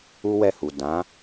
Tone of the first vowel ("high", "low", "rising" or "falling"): high